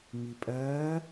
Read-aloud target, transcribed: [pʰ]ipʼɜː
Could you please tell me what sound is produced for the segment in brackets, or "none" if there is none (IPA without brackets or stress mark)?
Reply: m